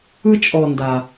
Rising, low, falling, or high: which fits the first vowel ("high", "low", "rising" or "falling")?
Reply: high